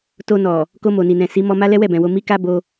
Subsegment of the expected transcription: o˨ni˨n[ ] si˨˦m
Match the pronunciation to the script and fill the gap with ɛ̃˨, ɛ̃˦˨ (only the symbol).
ɛ̃˨